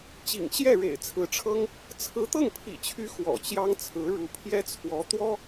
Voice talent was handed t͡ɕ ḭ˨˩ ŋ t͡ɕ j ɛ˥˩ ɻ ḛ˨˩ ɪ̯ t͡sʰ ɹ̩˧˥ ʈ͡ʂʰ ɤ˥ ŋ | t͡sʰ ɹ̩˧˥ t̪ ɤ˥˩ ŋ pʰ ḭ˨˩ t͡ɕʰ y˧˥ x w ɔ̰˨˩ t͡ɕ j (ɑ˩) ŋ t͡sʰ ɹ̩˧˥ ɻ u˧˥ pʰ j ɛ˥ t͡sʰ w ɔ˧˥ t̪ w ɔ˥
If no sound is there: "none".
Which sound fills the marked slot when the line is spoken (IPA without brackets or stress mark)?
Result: ɑ˥